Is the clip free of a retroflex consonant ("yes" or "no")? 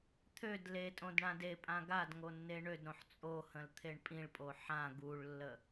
no